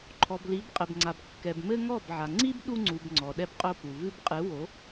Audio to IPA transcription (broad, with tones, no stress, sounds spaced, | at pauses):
ǃʰ ɔ˨ b l i˨˦ b qʼ ɘ˨ b ŋ͡ǀ a˨ b kː ɛ˨ b m ɘ˦ ŋ ɔ˦˨ b ʕ a˨ ŋ͡ǀ i˦ b ɗ u˦ ŋ͡ǀ u˨ b ŋ͡ǀ ɔ˨ ɗ ɛ˦ b qʼ o˦ p u˨ v ɨ˦ b qʼ ɨ˨˦ w o˨˦